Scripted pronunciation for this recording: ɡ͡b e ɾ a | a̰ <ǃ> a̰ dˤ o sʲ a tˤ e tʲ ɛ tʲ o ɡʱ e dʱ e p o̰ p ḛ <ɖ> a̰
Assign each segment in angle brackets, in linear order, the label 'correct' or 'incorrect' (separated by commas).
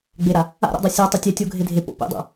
incorrect, incorrect